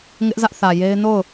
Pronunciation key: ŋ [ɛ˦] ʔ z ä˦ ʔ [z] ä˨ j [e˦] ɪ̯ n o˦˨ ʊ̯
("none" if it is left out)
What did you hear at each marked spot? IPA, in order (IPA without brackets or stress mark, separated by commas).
ɪ˦, θ, e˦